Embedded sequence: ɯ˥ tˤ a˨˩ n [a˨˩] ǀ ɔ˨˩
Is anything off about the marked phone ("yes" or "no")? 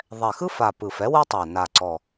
no